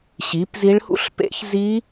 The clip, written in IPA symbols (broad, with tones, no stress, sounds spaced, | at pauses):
ɕ i˨˥ p z i˦˥ ɭ h ṵ˦˥ ɬ p ḛ˦˥ ç z i˦˥